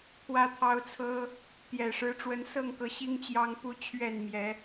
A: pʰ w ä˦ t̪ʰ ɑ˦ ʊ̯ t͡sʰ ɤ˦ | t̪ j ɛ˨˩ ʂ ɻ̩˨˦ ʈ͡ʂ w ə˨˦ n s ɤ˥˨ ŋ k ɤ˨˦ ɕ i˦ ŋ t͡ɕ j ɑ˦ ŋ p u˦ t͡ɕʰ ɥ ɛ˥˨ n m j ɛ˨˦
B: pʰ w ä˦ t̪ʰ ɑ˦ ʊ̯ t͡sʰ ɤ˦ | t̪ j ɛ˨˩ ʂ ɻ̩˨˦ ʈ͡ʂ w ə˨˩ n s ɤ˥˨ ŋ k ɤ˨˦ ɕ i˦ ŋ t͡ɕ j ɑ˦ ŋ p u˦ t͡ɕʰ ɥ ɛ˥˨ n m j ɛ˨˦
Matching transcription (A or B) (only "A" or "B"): A